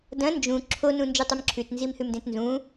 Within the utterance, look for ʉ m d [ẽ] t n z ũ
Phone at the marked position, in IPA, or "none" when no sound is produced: ẽ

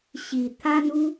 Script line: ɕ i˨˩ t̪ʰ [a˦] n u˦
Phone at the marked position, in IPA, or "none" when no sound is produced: a˦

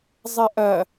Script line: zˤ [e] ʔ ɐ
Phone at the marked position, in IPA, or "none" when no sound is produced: ɛ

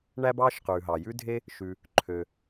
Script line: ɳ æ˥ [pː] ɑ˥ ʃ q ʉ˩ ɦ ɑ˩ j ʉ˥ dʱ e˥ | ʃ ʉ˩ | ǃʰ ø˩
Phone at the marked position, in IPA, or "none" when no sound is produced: b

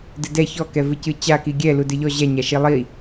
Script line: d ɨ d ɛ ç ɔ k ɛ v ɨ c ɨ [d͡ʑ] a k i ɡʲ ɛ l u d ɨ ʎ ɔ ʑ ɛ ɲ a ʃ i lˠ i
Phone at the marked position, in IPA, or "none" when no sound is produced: t͡ɕ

